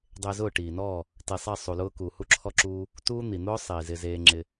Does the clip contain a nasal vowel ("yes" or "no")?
no